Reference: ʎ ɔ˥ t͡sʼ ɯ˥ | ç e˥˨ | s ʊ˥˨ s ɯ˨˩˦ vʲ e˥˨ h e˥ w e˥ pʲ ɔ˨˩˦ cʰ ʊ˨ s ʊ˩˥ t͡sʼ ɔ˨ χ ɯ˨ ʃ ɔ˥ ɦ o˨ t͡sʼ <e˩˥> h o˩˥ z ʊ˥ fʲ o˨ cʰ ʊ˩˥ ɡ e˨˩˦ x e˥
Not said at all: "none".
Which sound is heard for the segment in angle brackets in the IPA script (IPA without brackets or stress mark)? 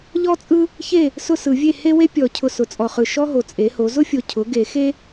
e˩˥